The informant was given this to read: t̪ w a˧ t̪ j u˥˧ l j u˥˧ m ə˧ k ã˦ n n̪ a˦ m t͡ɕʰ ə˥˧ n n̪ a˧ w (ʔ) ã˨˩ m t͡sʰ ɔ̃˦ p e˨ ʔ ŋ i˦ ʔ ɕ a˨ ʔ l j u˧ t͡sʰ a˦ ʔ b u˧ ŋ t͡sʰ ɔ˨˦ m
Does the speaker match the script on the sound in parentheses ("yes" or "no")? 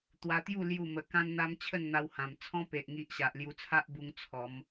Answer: no